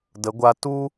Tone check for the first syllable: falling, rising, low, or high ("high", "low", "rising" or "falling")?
rising